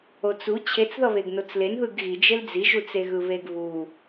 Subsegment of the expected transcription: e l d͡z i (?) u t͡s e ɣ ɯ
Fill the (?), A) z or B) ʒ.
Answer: B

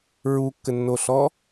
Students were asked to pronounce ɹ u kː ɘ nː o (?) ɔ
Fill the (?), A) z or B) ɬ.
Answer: B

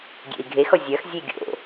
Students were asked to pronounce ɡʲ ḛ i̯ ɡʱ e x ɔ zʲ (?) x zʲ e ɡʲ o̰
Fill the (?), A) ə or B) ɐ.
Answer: B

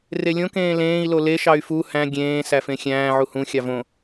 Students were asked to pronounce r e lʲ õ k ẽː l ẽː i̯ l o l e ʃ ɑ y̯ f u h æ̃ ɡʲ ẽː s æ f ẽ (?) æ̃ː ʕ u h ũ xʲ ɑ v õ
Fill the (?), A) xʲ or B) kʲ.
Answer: A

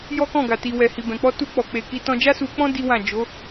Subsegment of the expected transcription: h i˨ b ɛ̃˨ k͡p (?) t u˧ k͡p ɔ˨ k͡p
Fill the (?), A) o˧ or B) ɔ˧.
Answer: B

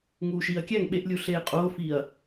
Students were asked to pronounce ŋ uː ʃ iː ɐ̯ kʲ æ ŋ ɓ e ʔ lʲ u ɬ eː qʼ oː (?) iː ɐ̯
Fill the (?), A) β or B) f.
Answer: B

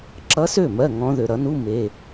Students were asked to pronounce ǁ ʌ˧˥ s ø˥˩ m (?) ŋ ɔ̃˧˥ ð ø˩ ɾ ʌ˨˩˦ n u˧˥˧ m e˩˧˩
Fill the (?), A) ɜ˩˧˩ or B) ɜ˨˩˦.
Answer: A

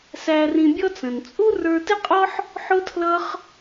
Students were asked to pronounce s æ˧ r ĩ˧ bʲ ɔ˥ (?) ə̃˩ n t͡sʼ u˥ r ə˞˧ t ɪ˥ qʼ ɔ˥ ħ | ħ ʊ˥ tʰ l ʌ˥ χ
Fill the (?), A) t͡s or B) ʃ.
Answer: A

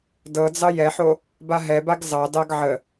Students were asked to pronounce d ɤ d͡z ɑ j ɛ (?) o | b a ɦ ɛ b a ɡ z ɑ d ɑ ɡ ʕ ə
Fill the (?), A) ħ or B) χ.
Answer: A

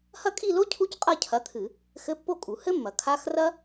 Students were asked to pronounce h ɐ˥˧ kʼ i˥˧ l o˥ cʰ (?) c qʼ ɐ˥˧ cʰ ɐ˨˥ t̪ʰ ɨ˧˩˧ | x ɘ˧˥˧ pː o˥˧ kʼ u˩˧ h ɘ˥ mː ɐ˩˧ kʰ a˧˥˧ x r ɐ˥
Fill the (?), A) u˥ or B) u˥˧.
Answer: A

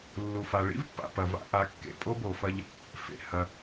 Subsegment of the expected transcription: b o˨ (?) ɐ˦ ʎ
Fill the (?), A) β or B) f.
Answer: B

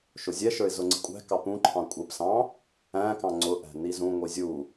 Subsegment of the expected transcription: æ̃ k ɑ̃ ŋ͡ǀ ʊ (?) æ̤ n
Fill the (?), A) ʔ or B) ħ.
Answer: A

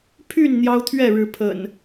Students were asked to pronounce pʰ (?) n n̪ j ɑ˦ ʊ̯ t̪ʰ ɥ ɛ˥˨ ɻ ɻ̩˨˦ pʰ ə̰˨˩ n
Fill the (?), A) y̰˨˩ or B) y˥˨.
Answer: B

